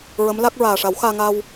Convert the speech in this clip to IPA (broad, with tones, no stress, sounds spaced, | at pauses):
ɹ ə˧˥ m l a˦˥ k̚ ɹ aː˨˩ ʂ a˨˩˦ w x aː˧ ŋ a˧ w